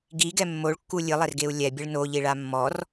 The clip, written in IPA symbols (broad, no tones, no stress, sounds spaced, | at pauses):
ɡ i ɡ ɛ mː o ɭ kː u lʲ ɨ lˠ ɛ r ɡ e u̯ lʲ ɛ bʲ ɨ ɭ n o ʎ i ɭ a mː ɔ r